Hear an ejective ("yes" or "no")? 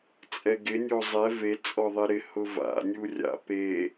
yes